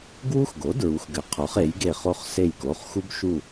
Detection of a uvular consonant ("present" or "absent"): present